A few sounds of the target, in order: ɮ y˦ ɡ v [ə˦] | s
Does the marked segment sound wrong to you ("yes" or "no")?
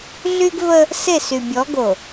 no